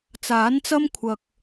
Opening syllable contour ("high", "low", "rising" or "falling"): rising